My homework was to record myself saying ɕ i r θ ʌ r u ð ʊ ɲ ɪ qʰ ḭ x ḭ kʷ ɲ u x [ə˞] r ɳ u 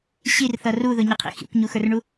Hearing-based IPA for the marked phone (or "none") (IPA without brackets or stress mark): ə˞